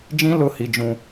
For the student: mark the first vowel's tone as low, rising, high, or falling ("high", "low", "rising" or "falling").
high